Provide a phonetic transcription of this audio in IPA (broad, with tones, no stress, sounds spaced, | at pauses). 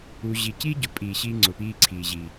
u˧ ʑ i˧ c i˦ ɟ ʊ˨ pʼ iː˨ ɕ iː˧ ŋ͡ǀ ʊ˨ p iː˦ ǀʰ iː˨ ʑ i˨